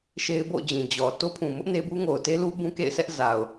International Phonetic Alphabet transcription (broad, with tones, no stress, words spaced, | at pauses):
ʃe˦ɪ̯bo̰˦˨ʊ̯d͡ʑĩ˨ d͡ʑɔ˨ to˦pʰũ˨ mʊ˦ʔ ne˦bu˦ ŋo˨ʊ̯te˦lu˦ bũ˦kḛ˦˨ɪ̯sʰɛ˦ʔ za˨ʊ̯